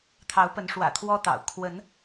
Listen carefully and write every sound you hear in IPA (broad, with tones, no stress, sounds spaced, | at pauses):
t̪ʰ ɑ˨˦ ʊ̯ p ə˨˦ n ʂ w ä̰˨˩ t̪ʰ w ɔ˦ t̪ ɑ̰˨˩ ʊ̯ kʰ w ə˨˦ n